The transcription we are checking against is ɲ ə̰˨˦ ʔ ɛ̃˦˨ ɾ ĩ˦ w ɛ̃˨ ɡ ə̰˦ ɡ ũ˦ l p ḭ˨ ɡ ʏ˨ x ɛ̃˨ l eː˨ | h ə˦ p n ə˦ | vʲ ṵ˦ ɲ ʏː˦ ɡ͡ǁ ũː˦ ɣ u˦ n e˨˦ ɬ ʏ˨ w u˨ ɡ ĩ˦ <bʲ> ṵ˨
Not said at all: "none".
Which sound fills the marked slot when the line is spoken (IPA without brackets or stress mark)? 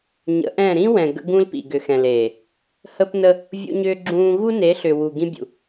bʲ